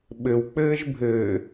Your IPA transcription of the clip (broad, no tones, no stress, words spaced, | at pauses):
ɓɘwk͡pɘːʒ bʱɘ